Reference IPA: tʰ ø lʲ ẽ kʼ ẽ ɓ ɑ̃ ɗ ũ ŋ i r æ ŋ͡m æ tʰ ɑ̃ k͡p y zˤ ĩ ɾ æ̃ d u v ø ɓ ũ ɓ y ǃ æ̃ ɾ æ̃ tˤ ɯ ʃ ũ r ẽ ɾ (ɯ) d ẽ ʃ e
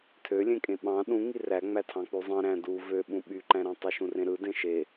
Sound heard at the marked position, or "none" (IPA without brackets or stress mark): ɯ